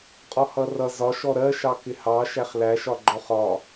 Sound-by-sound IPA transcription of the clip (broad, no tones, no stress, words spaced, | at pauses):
qʼɔhʌrʌ zɒ ʃɔɾɜ ʃɑkɪhɑ ʃæχlæʃɒ ɡ͡ǃɔχɒ